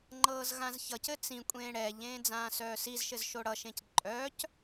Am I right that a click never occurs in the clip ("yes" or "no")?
no